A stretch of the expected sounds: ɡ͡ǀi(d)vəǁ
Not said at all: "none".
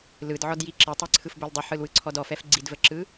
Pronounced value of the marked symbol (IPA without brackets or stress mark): d